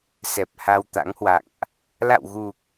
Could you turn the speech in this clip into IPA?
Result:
s ɛ˨˩ p̚ h a˧ w t̪ a̰˧˥ ŋ h w a̰˧˨ ŋ ʔ | l a̰˧˨ w ɣ u˨˩ k̚

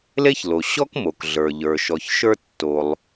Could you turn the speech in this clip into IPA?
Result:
l e˥ ç l o˩ ɕ ɔ˥ k m o˩ k ɮ ə˞˩ ʎ ə˞˩ ʃ ɔ˩ ç ʃ ə˞˥ tː o˩ lˠ

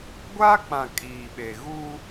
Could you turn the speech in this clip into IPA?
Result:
ɡʷ a˦ k͡p ã˨ kʼ iː˨ ɓ e˨ ɣ u˦

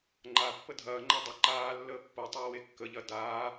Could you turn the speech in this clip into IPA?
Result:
ŋ͡ǃ a pː ə dʱ ɐː ŋ͡ǃ a dˤ ə ǃ aː lː əː pː o tˤ ɐː w e kː ə ʎ ɐ d aː

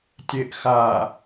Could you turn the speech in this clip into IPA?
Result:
tʲ e ʔ x a

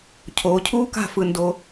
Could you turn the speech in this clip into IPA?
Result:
cʰ oː˨˦ cʰ uː˦ k a̤˦˨ f ɯ˦ n d o˦

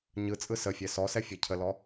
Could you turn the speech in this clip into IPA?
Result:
ɲ ɯ t͡sʼ ɯ s ə fʲ ɛ s ɔ s ɛ fʲ ɛ cʰ ə l ɔ

